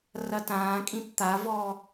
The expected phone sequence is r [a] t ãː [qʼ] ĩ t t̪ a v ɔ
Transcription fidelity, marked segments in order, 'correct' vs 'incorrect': incorrect: ɐ, incorrect: kʼ

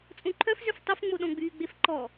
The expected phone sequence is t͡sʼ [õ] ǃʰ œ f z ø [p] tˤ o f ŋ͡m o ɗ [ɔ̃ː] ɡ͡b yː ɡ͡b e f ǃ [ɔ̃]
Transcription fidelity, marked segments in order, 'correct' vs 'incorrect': correct, incorrect: f, incorrect: ɔ̃, incorrect: ɔ

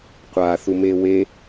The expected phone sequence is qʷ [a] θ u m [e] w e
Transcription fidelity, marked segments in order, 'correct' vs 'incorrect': correct, correct

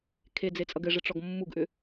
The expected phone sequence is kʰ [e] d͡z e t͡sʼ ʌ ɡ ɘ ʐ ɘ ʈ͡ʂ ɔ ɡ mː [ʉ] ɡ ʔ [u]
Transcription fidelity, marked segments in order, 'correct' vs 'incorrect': correct, incorrect: u, incorrect: ʏ

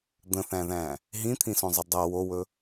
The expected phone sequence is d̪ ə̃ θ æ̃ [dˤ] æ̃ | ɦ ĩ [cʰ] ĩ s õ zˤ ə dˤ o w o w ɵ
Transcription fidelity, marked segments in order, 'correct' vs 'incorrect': incorrect: ð, incorrect: t̪ʰ

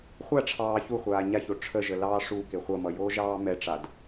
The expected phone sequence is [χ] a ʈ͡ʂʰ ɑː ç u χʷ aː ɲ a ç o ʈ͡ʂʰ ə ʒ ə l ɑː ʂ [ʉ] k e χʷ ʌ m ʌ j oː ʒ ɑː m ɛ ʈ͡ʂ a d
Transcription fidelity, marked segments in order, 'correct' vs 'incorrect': incorrect: χʷ, incorrect: u

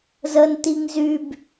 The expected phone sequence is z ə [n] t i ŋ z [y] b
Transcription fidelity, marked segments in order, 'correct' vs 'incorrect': correct, correct

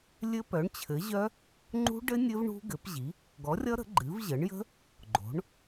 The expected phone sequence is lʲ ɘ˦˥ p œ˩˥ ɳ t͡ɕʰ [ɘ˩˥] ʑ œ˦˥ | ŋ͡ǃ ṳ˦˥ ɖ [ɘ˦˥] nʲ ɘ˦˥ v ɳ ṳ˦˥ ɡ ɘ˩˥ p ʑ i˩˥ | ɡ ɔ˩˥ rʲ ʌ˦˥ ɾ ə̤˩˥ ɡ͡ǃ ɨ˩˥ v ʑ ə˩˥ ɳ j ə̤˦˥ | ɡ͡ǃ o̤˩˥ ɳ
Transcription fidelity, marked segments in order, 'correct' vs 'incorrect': correct, correct

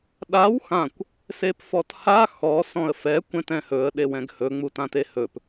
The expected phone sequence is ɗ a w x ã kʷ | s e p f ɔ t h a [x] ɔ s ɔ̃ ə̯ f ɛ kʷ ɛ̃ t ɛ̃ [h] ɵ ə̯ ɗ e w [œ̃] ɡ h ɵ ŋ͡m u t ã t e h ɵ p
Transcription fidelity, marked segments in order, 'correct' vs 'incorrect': correct, correct, incorrect: ɛ̃

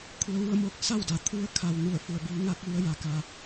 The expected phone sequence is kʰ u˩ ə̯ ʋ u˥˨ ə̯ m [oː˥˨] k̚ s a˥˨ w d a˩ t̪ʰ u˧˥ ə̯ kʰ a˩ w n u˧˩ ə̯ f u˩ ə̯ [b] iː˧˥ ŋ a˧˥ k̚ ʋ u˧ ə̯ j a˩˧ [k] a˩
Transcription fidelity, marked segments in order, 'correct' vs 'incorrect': correct, correct, correct

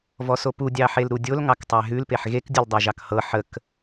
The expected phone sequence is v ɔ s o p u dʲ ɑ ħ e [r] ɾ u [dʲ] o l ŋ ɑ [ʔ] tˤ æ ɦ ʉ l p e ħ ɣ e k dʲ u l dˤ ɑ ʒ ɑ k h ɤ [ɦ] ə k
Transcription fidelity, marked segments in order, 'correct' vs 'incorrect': incorrect: l, correct, incorrect: k, incorrect: ħ

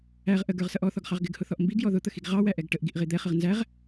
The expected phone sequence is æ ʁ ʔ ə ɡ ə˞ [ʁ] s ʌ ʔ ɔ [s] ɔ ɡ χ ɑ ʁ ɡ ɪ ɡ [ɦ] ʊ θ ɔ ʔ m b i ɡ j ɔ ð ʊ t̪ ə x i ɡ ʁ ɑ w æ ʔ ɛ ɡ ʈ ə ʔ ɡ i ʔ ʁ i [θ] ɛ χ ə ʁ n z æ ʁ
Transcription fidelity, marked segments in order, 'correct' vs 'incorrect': correct, incorrect: θ, incorrect: h, incorrect: d̪

